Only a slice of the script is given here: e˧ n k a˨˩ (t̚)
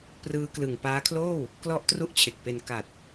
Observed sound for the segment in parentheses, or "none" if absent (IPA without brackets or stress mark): t̚